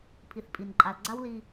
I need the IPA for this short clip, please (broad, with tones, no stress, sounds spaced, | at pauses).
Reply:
pʰ i˨ θ pʼ i˨ n ǃʼ a˨ l ɡ͡ǀ a˦ w l i˦